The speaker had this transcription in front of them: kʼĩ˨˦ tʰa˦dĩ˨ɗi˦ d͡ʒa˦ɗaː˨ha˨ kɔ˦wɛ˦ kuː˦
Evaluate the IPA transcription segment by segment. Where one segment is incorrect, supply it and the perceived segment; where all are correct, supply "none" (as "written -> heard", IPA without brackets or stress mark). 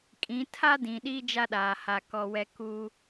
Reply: none